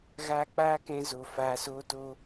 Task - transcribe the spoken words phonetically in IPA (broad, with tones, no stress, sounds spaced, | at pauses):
ɣ aː˧ k͡p aː˦ k ɛ̃˧ z o˨ f aː˨ s oː˧ t o˧